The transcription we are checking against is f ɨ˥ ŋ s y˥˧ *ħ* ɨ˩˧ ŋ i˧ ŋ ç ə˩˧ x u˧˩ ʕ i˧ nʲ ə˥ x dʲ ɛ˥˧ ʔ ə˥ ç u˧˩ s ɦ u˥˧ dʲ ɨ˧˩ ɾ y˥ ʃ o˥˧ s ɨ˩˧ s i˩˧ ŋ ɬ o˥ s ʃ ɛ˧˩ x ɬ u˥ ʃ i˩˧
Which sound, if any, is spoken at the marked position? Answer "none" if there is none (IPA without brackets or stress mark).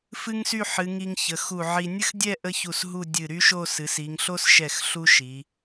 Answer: ħ